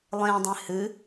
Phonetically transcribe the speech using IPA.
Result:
lˠẽdˤẽ hɨ

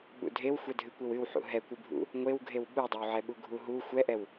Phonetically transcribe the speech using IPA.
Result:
ɓṵdʱewxʷɛ dʱɨkʷewɨwħṵ ɦɛkʷɨbʱṵ | ŋʷewɡʱew ɓudˤɛwʕɛ ɓuɡʱuɦu xʷɛʔɛw

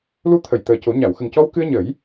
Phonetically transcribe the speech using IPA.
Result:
lu˧˥t̪ʰə˨˩˨j t̪əː˨˩co˨˩˦ ɲa˨˩˨wxə˨˩ŋcɔ˧wkɨ˧ə̯ ɲə˨˩˦j

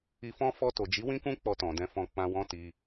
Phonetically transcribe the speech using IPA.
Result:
i˧fɔ̃˦ fɔ˧to˨d͡ʒi˨˦ wĩ˦kũ˦ k͡pɔ˧tɔ̃˨dɛ̃˧fɔ̃˧ k͡pã˧wɔ̃˦ti˧

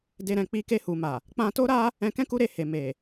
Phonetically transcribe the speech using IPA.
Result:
de˧ɾɛ̃˨ k͡pi˧ke˧ hu˨ma˨ | k͡pã˧to˦ɾa˦ | ɛ̃˧kɛ̃˦ ku˦ɾe˧he˨ me˨

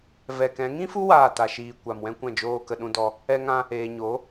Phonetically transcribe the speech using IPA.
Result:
vɛ˨kɛ̃˨˦ŋĩ˦fu˦ waː˦˨ta˨ʃiː˨ kʷa˨mwɛ̃˦kʷɛ̃˦˨ d͡ʒoː˧kə˨ɗũ˧dɔ˧ | ɛ˦ŋã˦ | eː˨ɲo˨˦

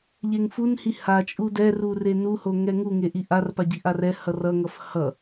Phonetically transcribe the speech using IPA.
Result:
ʎeŋfunhi hat͡ʃʼu dɛru renuho ŋɛŋuŋe ʔiʔarpa ɟiʔarɛhʌr ʌŋʌf hʌ

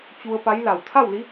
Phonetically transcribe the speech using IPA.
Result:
t͡ɕu˧ə̯pa˧˥jla˧˩w t̪ʰa˥˨wli˧˥

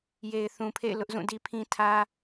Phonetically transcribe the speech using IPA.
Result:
je˨ɪ̯θũ˨pʰḛ˦˨ɪ̯ lʊ˦ʔzũ˦˨di˦pʰĩ˦ tʰä˦

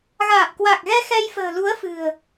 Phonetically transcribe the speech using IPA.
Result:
ɣaː˨˩p̚kwa˨˩k̚ɣɛ˧ xɛ˧jfə̤ː˨˩lu˨˦ə̯fɨ̤˨˩ə̯

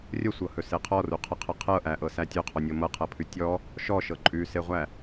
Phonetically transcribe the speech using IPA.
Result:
rʲəsʷɤhɵse qʰɔruqʰəqʰə qʰɤʔæʔɤsæ tʲɵqʰɔnʲɤ mɤqʰɤpʰʉ tʲɔ | ʃɔʃɤ ǃʼʉseʁʷæ

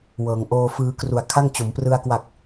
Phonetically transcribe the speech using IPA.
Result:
wɤː˩˦ŋ ʔoː˧fɯː˧kru˨˩a̯ kʰa˥˩ŋt͡ɕo˩˦m prɯ˧a̯ kwa˨˩k̚

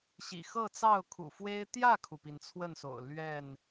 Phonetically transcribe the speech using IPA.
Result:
ɕḭ˨˩xɤ˥˨t͡sɑ˥˨ʊ̯ kʰṵ˨˩fwe˦ɪ̯ t̪jä˥˨kʰu˩pi˩n t͡sʰwə˥˨nso̰˨˩ʊ̯ lɥɛ˥˨n

